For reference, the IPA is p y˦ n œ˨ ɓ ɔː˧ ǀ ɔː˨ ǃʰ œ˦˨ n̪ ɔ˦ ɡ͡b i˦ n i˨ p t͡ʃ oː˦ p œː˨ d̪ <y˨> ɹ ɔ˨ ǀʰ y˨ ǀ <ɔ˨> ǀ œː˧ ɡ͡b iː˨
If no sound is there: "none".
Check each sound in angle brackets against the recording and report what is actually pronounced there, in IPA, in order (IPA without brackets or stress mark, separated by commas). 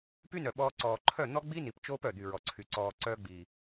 y˨, ɔː˨